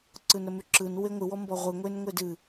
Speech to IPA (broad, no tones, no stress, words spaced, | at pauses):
ǀɯnɾəmʉǁɯn weŋʷɨ wɔmbɔʁʷɨ ŋʷenŋʷedɨ